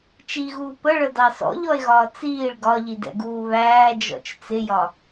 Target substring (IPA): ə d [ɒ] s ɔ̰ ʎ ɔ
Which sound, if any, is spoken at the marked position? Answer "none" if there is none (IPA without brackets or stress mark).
ɑ